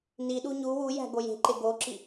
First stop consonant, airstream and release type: implosive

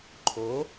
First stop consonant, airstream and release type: click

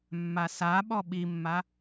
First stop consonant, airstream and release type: implosive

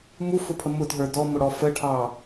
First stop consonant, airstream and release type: aspirated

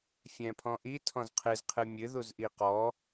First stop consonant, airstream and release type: aspirated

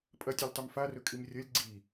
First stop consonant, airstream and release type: ejective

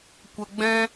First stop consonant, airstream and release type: plain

